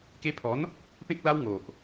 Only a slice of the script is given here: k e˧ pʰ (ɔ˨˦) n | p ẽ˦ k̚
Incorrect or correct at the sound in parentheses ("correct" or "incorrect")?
correct